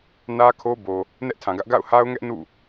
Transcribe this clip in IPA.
n ä˦ kʰ o˦ b o˨ | n ɛ˦ ʔ tʰ ã˨ ɡ ä˦ ʔ ɡ a̰˦˨ ʊ̯ h a˦ ʊ̯ ŋ ɛ˦ ʔ n ṵ˦˨

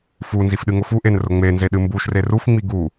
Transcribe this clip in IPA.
f u n z i f ɗ ɨ ŋ ʊ f u ʔ e n r ʊ ŋ͡m e n z e ɗ ɨ m b u ʃ r e r u f ŋ͡m i ɡ u

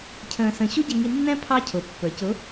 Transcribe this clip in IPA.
cʰ ə̃ː˧ s ə̃˧ ɕ u˦˥ ɟ ɛ˧ ŋ i˧ nː ɛ̃˦˥ pʰ ɑ˦˥ cʰ ʊ˩˧ pː ə˞˩˧ c ʊ˨˥

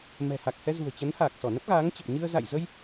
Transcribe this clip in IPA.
m ɛ̤˨˩ h a˨˩ k̚ h ɛ˧ z ṳ˨˩ ə̯ t͡ɕ ə˨˦ n h aː˨˩ k̚ s ɔ˧˩ n ə˦˥ p̚ ɣ aː˨˦ ŋ t͡ɕ ə˨˩ p̚ ɲ ɨ˧ ə̯ z a̰˧˨ j z ə˧ j

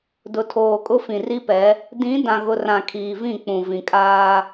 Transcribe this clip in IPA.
d ʊ˨ tʰ oː˨ kʼ ʊ˦ f ĩ˨ r i˦ p ɛ˨˦ | d ĩ˨˦ d ã˨ ɣ ʊ˨ r ã˨ kʰ iː˨ v ĩ˦˨ k͡p ũ˨ v ĩ˨ kʼ aː˦

